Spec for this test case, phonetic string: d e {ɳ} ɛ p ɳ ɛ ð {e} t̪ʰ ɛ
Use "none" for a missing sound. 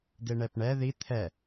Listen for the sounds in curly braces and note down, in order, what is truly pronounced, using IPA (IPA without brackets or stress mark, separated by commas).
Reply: ɳ, i